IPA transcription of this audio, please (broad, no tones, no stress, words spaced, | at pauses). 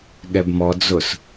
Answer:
ɠɛbmɔ d͡zʊs